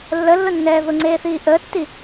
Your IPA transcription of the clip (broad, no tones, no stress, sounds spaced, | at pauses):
lː ə lː ʊ nː ɛː ð ʊ ŋ͡ǀ eː θ iː ʔ əː tː i